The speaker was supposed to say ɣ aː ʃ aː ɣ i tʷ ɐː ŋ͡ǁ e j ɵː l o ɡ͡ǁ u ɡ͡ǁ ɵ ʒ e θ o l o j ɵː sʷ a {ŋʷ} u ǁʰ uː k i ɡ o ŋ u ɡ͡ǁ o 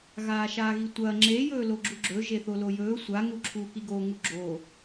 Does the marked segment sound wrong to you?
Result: yes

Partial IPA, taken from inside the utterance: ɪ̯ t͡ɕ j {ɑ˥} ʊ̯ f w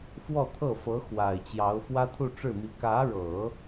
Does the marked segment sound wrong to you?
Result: yes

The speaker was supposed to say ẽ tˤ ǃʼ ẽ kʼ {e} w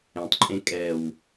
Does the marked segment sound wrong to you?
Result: yes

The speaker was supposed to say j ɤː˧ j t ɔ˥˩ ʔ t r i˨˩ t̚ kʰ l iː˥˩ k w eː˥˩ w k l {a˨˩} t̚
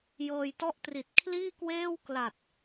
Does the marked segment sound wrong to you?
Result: no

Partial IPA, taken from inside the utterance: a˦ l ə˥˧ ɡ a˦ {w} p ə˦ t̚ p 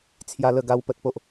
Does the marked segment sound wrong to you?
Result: no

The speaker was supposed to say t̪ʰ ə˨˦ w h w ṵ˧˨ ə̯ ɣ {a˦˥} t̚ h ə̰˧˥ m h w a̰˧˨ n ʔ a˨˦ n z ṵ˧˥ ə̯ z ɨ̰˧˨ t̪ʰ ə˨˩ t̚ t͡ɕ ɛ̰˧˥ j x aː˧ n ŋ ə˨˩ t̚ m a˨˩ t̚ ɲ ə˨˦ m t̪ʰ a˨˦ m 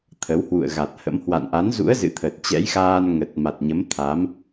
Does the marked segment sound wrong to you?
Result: yes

